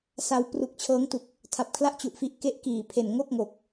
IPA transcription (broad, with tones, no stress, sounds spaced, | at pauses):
s a˧ w p r u˨˩ k̚ t͡ɕʰ ɤː˦˥ ŋ t u˨˩ k̚ | tʰ a˨˩ p̚ kʰ l a˥˩ ʔ t͡ɕ u˨˩ ʔ f i˦˥ ʔ k e˦˥ ʔ k iː˨˩ pʰ e˨˩ n ŋ o˥˩ k̚ ŋ o˨˩ k̚